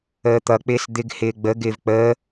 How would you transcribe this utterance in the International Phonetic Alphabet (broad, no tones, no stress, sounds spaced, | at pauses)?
əː t̪ ʌ k͡p ɪː s d̪ ɪ ɡ h ɪː ɡ͡b ə ɡ ɪː v k͡p əː